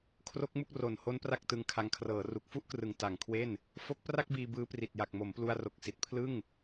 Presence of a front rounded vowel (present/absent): absent